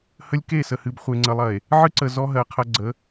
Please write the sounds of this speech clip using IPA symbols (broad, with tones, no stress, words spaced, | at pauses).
hə˦lʲke˦˨sə˨ hɨ˨bχʷe˨ŋ͡ǀə˨lˠɐ˨e̯ | ʕɨ˦ǀə˨ zɔ˦ɦɜ˨qʰɐ˦ ɡ͡ǀə˨˦